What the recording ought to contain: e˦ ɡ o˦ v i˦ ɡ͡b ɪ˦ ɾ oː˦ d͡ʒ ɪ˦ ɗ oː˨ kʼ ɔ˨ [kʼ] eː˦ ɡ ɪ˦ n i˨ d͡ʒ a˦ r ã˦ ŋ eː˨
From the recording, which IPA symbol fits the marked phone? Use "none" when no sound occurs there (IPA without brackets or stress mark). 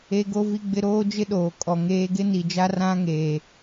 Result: ŋ